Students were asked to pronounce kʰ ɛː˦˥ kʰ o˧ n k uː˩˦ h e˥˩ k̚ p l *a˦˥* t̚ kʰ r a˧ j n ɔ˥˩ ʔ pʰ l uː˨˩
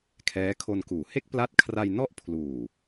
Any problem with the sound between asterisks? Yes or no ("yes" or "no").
no